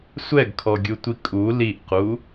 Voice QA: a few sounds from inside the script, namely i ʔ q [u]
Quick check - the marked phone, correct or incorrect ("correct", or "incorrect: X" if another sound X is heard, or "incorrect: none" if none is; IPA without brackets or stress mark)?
correct